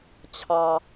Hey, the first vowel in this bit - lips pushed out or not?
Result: no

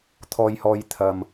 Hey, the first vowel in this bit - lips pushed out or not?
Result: yes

